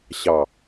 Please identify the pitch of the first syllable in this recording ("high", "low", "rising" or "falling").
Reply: low